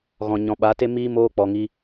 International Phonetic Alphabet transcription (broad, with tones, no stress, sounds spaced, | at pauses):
ɣ ɔ̃˨ ɲ ɔ̃˨ ɓ a˨˦ t e˦ m iː˦ m oː˦ k͡p ɔ˧ ŋ i˦